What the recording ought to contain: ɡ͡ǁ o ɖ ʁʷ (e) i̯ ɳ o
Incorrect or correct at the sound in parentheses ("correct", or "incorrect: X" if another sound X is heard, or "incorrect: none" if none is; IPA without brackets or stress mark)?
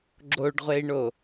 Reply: correct